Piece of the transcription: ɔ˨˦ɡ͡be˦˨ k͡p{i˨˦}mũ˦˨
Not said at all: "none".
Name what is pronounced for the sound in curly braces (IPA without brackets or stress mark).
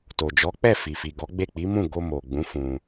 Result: i˨˦